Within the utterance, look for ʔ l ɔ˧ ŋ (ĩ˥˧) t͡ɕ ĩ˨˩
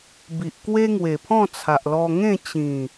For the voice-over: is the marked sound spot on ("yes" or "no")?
no